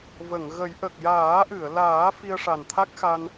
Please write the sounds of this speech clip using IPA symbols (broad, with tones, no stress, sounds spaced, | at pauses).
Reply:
v ə˨˩˨ ŋ ɣ ə˨˩˦ j ʔ ə˨˩ k̚ j aː˨˩˦ ʔ ɨ˨˩˨ ə̯ l aː˨˩˦ f i˧ ə̯ ʂ a˨˩ n t̪ʰ a˦˥ k̚ x a˧ n